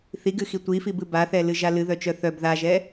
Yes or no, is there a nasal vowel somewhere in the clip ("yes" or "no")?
no